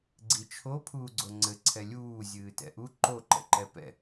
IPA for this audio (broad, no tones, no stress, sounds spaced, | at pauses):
ɡ͡ǀ i t͡ʃʰ o pʰ uː ɡ͡ǀ o ŋ͡ǀ ɘ ǀʰ ɛ lʲ uː zʲ ɨː t ɛ̰ ʔ u ǃ o ǃ ɛ̰ ǃ ɛ p ɛ̰